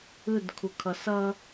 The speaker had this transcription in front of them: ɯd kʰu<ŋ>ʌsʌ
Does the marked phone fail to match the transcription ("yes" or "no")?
yes